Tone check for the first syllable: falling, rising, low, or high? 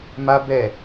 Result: high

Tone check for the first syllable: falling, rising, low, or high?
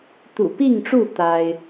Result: low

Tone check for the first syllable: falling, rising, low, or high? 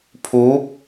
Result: rising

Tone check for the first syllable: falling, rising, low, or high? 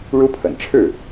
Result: high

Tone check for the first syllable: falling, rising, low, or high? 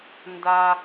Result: high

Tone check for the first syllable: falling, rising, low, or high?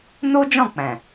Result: high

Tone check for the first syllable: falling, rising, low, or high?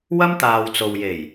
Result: high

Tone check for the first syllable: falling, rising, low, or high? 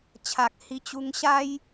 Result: low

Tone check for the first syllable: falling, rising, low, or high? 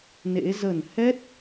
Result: rising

